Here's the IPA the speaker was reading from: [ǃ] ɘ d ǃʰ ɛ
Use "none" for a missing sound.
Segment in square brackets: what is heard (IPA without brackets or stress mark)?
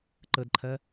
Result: ǃ